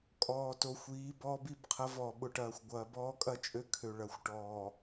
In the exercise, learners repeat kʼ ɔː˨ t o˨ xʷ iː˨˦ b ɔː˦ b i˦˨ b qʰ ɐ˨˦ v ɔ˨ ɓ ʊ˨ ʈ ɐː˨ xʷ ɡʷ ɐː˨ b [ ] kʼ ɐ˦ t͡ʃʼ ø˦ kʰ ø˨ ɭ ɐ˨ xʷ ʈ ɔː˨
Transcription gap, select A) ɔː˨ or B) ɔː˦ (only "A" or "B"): B